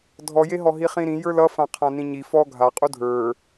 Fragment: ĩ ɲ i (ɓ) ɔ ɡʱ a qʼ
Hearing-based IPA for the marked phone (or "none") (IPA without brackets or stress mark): f